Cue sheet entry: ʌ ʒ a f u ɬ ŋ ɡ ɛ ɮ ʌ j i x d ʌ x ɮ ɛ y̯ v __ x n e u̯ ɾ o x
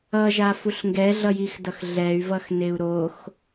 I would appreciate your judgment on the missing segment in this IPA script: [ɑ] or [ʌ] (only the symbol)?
ʌ